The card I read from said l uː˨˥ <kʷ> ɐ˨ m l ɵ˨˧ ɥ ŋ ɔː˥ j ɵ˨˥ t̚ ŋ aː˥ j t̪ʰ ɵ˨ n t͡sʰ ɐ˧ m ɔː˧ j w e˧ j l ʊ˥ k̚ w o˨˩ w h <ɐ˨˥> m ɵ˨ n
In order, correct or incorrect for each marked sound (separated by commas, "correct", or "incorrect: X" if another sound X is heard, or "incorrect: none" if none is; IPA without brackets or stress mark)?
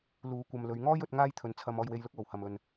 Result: correct, incorrect: ɐ˨